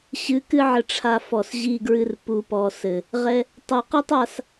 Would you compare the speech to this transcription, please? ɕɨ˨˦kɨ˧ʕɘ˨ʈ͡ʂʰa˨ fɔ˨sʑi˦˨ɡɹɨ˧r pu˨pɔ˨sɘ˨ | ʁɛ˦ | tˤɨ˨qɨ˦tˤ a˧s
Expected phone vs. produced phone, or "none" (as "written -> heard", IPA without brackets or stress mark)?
none